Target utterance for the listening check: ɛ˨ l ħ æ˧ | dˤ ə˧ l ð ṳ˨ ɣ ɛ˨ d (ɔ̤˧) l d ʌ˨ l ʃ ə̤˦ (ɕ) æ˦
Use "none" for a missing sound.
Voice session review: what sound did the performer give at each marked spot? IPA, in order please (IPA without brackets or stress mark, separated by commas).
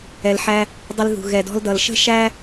ɔ̤˧, ʃ